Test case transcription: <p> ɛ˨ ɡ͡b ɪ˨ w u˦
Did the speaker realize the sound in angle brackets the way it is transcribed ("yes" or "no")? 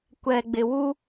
no